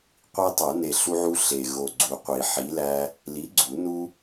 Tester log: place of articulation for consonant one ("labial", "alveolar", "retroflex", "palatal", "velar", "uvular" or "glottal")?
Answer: uvular